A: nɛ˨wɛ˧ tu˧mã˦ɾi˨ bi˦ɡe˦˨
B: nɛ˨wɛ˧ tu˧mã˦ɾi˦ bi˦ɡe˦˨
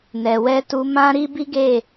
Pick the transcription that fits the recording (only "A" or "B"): B